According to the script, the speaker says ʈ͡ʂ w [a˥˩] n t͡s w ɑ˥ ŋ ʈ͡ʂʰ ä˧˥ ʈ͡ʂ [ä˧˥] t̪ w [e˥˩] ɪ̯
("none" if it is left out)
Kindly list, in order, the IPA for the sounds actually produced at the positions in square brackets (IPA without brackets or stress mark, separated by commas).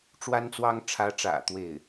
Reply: a˥, ä̰˨˩, e˥˩